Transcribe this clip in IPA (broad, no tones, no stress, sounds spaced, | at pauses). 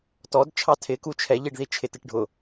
t ɔ d t͡ʃʰ ɑ tʰ ɪ k u t͡ʃʰ ɛ ʎ i ɖ ð i t͡ʃʰ ɪ t ɪ ʈ ɖʱ ʊ